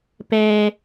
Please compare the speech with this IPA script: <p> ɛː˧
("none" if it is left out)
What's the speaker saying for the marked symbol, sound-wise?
p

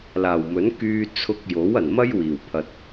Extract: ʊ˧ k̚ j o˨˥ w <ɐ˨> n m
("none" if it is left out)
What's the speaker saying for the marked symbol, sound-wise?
ɐ˨˩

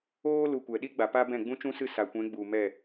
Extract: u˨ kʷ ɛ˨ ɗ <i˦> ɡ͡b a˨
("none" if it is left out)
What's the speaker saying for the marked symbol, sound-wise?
i˦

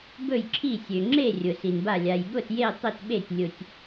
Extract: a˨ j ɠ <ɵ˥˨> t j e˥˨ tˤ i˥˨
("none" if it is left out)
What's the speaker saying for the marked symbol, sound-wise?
ʊ˥˨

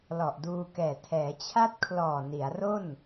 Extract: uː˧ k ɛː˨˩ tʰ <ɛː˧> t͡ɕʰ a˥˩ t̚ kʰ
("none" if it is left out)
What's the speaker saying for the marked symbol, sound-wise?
ɛː˩˦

